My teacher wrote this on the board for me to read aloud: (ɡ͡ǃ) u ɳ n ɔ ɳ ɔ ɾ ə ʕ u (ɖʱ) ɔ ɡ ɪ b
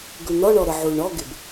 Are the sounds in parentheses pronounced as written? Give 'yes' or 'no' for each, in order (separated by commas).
no, no